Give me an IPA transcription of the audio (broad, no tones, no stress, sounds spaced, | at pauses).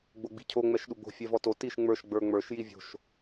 ɡ͡b o ɡ͡b i̤ cʰ o ŋ͡m ɛ ʃ ɗ u ɡ͡b o̤ fʲ ɛ v ɔ t o t i ʃ ŋ͡m ə˞ ʃ ɡ͡b ə˞ ŋ͡m ə˞ ʃ j i vʲ o̤ ʃ